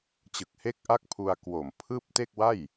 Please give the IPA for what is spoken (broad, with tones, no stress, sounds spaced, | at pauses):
t͡ɕ ɯ˨˩ k̚ h e˦˥ k̚ ʔ a˦˥ k̚ pʰ u˧ a̯ k w o˨˩ m pʰ ɯː˥˩ p̚ t e˥˩ k̚ w a˥˩ j